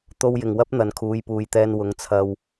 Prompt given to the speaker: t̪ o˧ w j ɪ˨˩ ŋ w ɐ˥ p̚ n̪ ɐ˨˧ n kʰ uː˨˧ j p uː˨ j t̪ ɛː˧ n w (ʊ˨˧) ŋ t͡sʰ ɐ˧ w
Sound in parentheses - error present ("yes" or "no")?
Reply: no